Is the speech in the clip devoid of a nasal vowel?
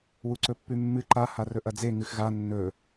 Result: yes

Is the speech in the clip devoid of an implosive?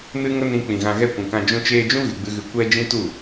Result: yes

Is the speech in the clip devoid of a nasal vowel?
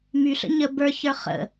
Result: yes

